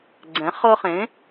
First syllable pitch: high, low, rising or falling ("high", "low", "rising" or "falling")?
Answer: rising